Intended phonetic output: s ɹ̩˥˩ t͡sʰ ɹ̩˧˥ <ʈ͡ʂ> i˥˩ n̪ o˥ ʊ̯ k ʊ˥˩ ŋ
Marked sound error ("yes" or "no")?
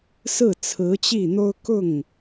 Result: yes